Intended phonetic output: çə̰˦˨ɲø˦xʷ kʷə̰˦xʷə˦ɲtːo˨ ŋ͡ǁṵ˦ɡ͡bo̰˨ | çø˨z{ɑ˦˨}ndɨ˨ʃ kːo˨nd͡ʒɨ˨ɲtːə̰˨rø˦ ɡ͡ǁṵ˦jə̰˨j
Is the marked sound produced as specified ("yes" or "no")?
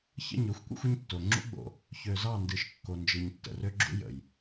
yes